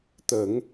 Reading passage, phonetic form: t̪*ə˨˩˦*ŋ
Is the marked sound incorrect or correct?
correct